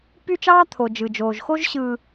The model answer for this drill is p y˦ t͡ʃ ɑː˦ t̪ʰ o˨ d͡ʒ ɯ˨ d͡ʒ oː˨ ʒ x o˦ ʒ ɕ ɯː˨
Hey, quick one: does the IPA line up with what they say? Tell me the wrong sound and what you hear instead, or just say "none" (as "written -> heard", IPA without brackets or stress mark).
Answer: none